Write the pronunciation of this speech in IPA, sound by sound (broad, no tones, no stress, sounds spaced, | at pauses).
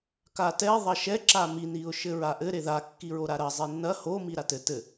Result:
k a t ɛ ðˤ ɐ ʃ ɛ ǁ a m i n i ʊ̯ ʃ ɘ ɹ a ʔ ɘ ɾ e ð a kː i ɹ o ɾ a ɾ ɐ zˤ i nː ɐ h o m i ɾ a t ɘ t ɘ